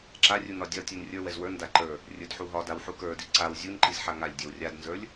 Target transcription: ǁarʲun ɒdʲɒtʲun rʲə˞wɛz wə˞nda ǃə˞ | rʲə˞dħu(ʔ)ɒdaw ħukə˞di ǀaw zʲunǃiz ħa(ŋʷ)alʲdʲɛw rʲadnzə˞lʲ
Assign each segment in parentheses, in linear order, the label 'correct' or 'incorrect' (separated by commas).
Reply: incorrect, incorrect